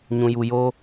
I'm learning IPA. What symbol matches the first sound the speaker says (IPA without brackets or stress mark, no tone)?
ɲ